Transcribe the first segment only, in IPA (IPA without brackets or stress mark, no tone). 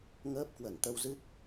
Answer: ŋ